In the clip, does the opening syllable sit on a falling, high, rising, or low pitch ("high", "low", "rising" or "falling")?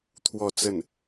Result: falling